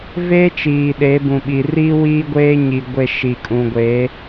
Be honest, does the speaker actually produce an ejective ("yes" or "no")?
yes